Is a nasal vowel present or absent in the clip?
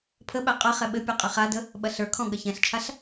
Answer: present